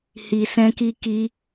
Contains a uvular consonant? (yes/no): no